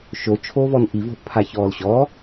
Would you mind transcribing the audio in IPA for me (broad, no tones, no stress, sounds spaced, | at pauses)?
ʃ o t͡ʃʰ oː v ɔ n ʔ i v o̤ ʔ pʰ a ç ɔː l ɕ ɔː